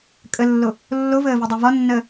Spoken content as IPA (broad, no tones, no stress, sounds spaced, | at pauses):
kʼ ə lː o | lː o v əː v i dˤ i v ɒ nː əː